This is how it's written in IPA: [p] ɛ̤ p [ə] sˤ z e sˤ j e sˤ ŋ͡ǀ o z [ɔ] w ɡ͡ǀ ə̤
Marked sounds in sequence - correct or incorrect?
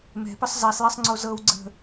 incorrect, correct, incorrect

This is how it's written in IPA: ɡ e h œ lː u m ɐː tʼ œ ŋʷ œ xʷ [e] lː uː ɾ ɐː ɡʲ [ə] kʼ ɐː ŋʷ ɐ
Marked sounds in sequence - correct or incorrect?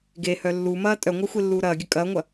correct, correct

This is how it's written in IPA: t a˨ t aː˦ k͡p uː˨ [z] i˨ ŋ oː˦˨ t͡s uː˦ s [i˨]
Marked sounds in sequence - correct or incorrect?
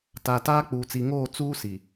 incorrect, correct

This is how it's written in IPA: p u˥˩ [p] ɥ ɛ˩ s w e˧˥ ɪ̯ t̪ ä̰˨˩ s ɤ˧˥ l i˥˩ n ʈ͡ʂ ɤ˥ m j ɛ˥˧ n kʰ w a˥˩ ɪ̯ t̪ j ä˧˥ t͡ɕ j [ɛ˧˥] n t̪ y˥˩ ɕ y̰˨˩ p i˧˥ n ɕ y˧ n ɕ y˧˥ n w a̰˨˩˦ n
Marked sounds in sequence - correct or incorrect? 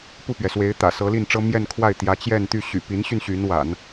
correct, incorrect

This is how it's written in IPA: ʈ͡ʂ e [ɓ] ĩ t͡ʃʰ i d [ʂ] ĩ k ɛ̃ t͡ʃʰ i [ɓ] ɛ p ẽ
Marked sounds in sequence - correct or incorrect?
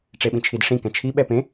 correct, correct, correct

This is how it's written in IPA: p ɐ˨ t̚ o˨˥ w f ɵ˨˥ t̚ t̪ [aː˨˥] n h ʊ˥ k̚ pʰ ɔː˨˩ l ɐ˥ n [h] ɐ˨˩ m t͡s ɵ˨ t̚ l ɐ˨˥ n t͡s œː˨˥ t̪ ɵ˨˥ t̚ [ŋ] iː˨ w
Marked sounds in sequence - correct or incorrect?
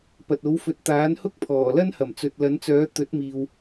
correct, correct, incorrect

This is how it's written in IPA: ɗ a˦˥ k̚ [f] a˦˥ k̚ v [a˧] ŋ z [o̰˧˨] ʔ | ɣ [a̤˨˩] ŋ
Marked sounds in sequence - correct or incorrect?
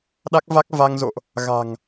incorrect, correct, correct, correct

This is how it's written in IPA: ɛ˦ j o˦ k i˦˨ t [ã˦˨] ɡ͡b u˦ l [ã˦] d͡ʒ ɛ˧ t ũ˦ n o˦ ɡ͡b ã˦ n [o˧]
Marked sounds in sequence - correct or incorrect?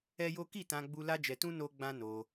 incorrect, incorrect, correct

